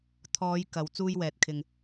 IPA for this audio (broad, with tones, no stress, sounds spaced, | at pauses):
t̪ʰ ɔː˨˧ j k ɐ˨˧ w t͡s uː˧ j w ɛː˨ t̚ kʰ ɪ˨ ŋ